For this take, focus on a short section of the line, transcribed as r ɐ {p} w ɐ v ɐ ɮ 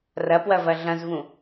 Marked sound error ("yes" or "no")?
no